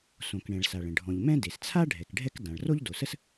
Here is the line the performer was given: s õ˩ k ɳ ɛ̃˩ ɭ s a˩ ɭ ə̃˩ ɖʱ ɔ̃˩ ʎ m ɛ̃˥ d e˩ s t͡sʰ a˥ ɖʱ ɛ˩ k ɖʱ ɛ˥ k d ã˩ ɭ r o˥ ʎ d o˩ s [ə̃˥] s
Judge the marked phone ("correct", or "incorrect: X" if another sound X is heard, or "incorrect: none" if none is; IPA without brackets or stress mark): incorrect: ə˥